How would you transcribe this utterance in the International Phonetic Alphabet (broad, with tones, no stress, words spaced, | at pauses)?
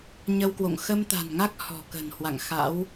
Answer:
ɲə˧wkwo̰˧˨ŋ xə˧mt̪a̤˨˩nŋa˦˥k̚ hɔ̤˨˩kə̤˨˩nhwa̰˧˨ŋ xa̰˧˥w